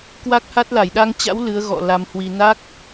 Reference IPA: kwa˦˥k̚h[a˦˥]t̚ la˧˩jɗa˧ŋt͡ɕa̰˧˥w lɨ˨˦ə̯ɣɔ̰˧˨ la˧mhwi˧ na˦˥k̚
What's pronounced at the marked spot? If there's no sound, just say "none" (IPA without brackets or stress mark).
a˦˥